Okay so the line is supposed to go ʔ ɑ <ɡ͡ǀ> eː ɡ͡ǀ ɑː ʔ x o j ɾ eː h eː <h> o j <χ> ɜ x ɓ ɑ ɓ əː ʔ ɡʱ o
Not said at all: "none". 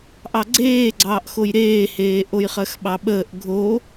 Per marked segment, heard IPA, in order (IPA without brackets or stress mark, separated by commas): ɡ͡ǀ, ʔ, χ